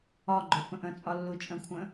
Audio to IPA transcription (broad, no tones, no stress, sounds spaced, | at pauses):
ɒ ɡ͡ǃ ʊ f ə̃ ʔ ə̃ t͡sʼ ɒ lː u t͡ʃʼ ə̃ kʷʰ ə̃